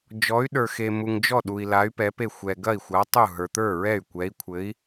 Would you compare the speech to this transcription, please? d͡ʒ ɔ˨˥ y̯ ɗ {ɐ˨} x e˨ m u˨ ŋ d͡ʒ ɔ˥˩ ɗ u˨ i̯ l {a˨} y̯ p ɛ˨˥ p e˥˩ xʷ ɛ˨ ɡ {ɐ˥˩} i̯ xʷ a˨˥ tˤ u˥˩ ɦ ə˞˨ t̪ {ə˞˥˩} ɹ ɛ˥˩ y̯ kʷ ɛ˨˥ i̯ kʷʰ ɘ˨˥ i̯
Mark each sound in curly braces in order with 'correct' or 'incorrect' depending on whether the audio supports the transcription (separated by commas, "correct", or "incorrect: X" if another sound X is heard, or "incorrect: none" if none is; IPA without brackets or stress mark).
incorrect: ə˞˨, incorrect: a˨˥, correct, correct